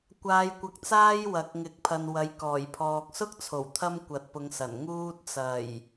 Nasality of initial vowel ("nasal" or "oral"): oral